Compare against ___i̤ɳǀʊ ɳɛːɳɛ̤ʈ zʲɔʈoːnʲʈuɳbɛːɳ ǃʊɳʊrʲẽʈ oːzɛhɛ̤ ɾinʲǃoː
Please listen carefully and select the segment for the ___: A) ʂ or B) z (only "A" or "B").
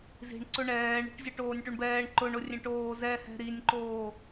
B